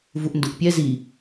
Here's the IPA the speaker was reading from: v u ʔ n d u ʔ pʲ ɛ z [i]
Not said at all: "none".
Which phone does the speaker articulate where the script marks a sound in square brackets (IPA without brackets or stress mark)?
i